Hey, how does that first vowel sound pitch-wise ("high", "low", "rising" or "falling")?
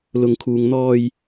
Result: low